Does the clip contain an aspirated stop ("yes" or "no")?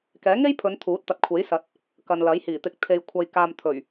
yes